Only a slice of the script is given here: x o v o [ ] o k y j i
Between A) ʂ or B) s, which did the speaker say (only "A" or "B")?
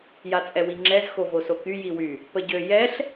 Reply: B